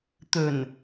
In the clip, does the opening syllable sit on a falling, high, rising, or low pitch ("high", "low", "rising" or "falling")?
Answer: low